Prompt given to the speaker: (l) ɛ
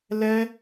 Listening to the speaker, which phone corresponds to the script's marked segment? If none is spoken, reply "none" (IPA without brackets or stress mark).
l